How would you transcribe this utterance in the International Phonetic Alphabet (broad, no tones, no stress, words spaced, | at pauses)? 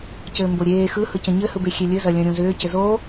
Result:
cɘːmboɾʲeː xɯhɯcə̃ ɲɘhɯbexʲe lʲɘzɐlʲɐ̃ ɾʲõzʏː cɘzo